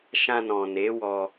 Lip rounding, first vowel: unrounded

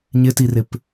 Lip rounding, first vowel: unrounded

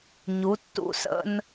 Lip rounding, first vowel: rounded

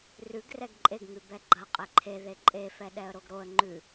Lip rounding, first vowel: rounded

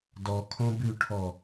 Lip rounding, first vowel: rounded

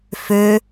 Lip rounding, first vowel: rounded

